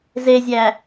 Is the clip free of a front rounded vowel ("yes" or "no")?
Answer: yes